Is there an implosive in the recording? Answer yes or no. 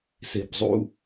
no